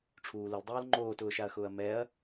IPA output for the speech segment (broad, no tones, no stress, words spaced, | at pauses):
ʈ͡ʂʰuːlʊldˤoːl ŋ͡ǃoːtʊːʃaɐ̯xʊːɐ̯ mɛɐ̯